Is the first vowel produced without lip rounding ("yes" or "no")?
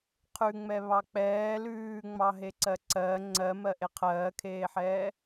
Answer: no